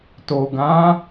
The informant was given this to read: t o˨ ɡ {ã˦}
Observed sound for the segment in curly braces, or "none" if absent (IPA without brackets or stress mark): ã˨˦